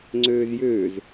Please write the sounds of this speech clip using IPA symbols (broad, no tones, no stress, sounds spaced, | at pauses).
ŋ͡ǀ øː z j øː z